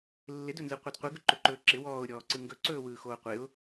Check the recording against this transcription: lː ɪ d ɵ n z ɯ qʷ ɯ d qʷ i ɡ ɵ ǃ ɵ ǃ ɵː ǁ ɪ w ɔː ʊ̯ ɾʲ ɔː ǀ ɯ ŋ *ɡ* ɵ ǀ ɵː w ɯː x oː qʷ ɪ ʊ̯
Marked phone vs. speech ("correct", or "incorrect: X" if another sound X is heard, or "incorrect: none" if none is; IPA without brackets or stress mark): correct